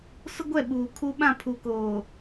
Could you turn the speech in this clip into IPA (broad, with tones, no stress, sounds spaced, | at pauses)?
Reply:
s ʊ˦ ɡʷ ɛ˦˨ ɓ uː˨ kʰ u˦ ɓ ã˦˨ pʰ u˨ k oː˨